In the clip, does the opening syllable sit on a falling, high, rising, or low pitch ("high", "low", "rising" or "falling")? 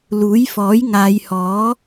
rising